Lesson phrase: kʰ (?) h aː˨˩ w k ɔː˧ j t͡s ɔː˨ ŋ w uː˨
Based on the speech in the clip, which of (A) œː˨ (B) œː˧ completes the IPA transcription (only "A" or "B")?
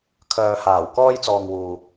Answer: A